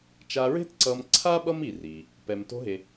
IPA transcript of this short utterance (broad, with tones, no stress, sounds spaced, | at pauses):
t͡ʃ a˧ ɹ e̤˥ t ǀ ʌ˧ m ǀʰ a˥ ɓ ʌ˥ m i˩ r i˩ | p ɛ˩ m t o̤˧ ɦ e˩